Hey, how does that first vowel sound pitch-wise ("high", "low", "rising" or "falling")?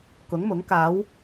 rising